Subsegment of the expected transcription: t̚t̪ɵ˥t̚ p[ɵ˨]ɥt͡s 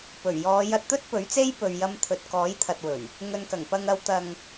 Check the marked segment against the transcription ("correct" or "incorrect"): incorrect